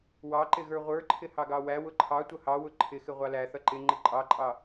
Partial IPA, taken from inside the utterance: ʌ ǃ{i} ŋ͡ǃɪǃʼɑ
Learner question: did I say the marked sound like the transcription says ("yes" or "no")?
no